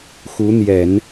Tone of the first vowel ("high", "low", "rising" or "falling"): rising